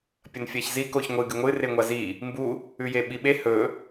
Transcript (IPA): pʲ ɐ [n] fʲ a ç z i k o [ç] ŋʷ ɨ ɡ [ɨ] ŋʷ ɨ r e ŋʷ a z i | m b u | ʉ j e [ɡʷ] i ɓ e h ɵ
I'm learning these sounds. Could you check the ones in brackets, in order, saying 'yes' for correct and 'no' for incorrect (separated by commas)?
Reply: yes, yes, yes, no